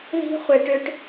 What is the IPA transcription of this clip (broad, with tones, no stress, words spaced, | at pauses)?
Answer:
ði̤˦ χʷe˨ʈʏ˦ʈ